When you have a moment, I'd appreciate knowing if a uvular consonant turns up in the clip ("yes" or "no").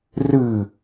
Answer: no